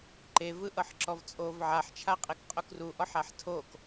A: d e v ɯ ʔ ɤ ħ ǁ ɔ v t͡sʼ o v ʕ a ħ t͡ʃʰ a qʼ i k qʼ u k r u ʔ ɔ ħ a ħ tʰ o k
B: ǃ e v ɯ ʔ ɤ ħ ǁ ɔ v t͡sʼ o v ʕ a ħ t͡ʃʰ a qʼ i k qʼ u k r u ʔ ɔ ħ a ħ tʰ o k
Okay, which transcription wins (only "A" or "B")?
B